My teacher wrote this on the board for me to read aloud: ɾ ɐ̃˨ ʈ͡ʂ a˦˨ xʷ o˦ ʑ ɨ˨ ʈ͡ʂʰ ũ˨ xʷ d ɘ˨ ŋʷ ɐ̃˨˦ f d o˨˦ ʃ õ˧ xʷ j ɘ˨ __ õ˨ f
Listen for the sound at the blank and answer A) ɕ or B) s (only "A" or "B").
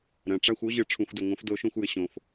A